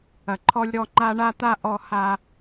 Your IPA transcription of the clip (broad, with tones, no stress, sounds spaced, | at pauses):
ɐ˨ ǃʰ ɔ˧ lʲ ɾ ɔ˧ ŋ͡ǃ a˦ ɳ a˦ t̪ a˦ ʔ ɔ˧ h a˧